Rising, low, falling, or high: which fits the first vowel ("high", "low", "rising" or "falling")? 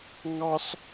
high